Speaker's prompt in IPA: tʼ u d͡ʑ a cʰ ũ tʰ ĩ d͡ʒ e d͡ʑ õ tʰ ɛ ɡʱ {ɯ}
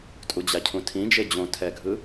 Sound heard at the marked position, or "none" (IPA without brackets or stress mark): ɯ